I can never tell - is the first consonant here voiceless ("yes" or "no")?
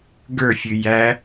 no